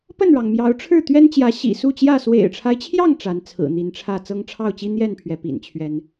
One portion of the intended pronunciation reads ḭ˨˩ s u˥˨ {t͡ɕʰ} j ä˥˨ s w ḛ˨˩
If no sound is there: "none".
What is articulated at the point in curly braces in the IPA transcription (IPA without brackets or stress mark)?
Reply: t͡ɕ